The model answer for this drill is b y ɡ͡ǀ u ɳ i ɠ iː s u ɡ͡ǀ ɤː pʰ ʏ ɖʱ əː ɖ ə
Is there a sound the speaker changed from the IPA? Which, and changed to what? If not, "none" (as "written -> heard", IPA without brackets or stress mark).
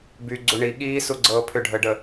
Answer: none